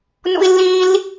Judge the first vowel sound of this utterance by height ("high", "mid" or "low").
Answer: high